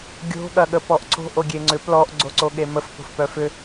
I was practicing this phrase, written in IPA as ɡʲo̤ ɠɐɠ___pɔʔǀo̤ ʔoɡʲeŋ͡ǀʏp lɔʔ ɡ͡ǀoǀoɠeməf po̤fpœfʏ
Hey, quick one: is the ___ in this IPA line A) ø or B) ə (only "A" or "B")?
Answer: B